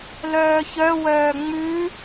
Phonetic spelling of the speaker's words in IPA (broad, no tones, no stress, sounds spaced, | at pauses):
l œː ç œ w œː ŋ͡m ʉ